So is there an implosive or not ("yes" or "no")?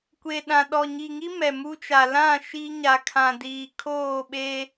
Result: yes